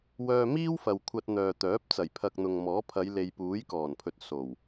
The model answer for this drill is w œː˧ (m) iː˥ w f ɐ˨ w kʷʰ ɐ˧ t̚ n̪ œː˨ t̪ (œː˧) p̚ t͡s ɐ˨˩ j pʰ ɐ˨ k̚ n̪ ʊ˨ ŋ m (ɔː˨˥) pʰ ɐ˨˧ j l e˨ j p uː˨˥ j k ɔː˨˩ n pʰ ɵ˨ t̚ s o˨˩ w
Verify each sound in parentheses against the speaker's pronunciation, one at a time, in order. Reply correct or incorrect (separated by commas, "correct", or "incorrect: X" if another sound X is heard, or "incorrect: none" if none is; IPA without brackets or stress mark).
correct, incorrect: œː˨˥, correct